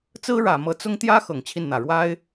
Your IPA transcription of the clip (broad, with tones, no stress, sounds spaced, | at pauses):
t͡s ɹ̩˥ ɻ ä˨˩ m ɤ˧˥ t͡s ʊ˥ ŋ t̪ j ä˥ x ɤ˨˩ ŋ t͡ɕʰ i˥˩ n n̪ ä˨˩ ɻ w a˥ ɪ̯